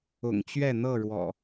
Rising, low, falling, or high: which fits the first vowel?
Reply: low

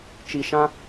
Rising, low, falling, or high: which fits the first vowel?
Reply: low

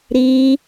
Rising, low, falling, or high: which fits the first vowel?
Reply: high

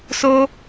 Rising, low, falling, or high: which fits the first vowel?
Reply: high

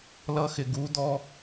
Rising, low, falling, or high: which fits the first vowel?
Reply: high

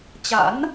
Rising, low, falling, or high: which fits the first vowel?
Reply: rising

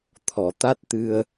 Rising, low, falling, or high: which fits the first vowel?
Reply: low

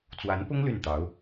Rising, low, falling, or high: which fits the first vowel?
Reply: rising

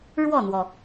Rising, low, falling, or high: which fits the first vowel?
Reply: falling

